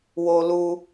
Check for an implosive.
absent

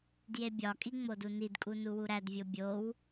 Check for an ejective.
present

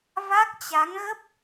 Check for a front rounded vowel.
absent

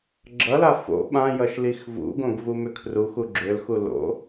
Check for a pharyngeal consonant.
absent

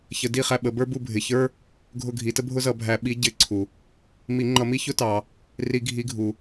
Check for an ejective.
absent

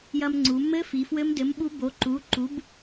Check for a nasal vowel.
absent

